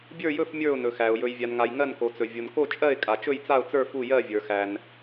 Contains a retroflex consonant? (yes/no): no